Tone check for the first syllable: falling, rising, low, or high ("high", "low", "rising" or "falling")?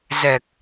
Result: low